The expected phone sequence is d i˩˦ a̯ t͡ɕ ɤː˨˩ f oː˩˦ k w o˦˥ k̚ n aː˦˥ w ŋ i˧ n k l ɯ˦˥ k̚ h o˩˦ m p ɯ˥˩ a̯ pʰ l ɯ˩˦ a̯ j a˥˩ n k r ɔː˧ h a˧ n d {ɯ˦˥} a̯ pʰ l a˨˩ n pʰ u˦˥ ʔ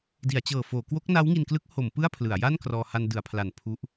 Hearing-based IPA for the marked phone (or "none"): ɯ˩˦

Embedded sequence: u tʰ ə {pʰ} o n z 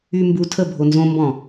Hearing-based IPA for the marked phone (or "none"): bʱ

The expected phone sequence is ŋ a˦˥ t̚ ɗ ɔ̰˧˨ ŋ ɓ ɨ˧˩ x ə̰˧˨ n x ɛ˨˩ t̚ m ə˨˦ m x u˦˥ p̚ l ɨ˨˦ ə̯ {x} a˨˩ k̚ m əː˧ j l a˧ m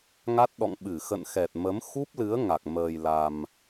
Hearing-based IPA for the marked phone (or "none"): ŋ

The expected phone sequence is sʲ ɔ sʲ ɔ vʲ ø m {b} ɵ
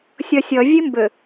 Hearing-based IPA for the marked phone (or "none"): b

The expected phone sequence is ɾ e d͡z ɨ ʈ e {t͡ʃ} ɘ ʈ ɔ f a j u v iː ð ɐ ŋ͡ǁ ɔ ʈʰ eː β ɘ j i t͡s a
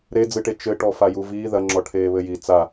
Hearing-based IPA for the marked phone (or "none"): t͡ʃ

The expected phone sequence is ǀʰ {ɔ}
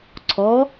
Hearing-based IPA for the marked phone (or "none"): ɔ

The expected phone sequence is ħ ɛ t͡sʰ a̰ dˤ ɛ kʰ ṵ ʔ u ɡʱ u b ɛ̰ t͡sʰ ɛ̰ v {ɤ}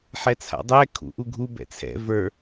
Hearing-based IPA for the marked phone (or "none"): ə˞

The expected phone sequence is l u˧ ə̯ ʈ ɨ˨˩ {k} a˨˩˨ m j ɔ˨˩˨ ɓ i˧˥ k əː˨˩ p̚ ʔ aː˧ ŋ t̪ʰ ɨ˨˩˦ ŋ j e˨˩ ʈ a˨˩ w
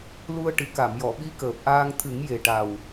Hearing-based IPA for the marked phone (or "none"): k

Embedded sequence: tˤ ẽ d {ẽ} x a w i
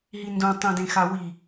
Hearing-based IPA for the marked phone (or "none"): ẽ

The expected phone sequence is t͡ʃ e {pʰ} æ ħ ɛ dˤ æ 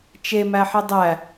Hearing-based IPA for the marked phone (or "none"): m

